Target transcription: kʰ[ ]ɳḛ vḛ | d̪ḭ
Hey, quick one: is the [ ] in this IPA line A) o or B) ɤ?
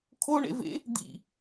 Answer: A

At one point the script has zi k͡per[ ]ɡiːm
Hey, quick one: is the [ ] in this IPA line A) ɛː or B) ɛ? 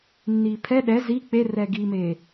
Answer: B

